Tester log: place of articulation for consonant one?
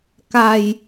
velar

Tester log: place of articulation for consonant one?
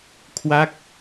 velar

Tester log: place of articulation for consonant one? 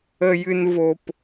palatal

